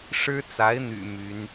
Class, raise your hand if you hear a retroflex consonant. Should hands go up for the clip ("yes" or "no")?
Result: yes